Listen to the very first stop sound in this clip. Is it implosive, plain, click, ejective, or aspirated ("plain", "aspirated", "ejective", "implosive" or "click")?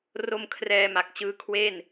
aspirated